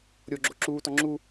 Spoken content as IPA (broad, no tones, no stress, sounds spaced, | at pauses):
ɾʲ o ɡ͡ǁ o ǁ uː t ɔ ŋ͡ǁ u